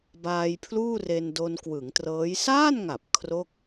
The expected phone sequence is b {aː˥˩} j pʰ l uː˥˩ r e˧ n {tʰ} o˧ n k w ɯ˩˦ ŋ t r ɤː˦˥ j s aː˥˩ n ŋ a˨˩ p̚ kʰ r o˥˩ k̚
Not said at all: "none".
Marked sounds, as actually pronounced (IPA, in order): aː˧, d

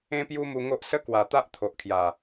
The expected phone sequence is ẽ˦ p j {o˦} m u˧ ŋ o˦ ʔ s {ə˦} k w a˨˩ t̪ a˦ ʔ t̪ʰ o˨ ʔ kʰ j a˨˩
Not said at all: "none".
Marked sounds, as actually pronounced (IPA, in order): u˦, ə˦

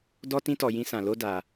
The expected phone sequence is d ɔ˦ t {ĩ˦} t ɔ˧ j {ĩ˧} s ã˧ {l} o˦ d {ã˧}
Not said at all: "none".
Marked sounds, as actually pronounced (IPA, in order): ĩ˦, ĩ˦, l, a˧

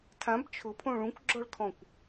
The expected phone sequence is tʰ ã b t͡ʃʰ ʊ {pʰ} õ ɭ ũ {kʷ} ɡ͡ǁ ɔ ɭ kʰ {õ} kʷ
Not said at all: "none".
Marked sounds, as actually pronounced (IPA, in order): pʰ, kʷ, ɔ̃

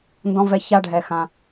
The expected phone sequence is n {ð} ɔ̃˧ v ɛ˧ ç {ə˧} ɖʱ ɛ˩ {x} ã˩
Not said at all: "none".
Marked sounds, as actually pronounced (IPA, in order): d, a˧, x

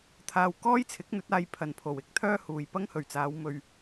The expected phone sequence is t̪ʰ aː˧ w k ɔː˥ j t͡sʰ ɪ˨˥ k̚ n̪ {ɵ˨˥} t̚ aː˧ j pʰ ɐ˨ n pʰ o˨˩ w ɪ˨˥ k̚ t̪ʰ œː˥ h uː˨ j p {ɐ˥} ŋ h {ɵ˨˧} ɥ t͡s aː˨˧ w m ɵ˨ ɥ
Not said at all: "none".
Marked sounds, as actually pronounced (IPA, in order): ɵ˨˥, ɐ˥, ɵ˨˩

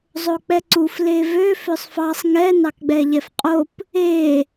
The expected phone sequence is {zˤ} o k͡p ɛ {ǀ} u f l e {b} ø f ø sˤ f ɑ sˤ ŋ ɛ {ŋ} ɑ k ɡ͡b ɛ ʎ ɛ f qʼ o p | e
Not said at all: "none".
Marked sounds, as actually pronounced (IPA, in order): zˤ, ǀ, v, n

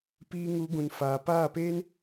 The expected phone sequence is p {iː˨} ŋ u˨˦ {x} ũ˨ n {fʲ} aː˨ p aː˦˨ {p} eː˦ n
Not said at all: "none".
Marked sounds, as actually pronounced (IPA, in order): iː˧, ɡ, f, p

